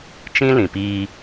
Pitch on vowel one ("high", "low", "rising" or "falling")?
high